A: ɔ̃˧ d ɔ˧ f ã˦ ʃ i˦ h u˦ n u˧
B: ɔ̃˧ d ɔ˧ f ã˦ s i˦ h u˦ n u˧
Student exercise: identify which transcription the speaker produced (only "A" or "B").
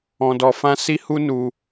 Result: B